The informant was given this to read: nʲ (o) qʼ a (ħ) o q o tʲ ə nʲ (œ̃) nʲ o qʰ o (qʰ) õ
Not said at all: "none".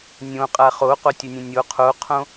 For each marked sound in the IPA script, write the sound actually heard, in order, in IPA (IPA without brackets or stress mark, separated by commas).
õ, χ, ə̃, qʰ